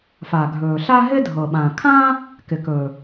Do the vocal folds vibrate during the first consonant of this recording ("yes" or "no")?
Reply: no